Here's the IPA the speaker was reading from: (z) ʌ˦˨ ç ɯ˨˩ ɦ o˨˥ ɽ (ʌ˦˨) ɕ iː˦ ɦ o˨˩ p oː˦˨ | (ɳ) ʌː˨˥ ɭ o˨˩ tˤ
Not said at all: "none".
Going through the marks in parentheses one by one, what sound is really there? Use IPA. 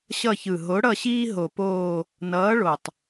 ɕ, ʌ˦˨, n

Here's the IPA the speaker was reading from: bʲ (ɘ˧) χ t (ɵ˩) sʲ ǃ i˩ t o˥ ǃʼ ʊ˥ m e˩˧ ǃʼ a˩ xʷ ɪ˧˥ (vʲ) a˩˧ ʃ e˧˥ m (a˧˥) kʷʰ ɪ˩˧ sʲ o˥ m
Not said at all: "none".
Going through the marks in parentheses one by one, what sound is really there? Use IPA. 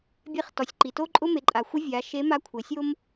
e˧, ɔ˩, vʲ, a˧˥

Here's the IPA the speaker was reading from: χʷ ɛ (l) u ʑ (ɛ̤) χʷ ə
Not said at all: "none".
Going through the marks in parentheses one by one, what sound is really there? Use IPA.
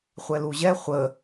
l, ɛ

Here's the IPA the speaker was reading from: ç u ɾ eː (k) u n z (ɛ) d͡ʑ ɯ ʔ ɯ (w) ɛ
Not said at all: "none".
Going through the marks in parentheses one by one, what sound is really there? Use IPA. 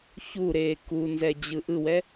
k, ɛ, w

